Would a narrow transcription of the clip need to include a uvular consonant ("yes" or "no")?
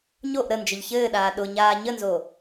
no